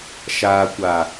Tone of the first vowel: low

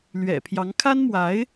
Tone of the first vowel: low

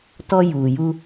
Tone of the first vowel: high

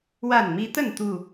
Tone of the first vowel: falling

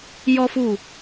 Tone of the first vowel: high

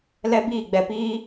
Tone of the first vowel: high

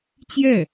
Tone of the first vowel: falling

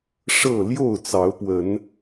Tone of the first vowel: falling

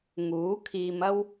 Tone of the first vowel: rising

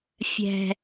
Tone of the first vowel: low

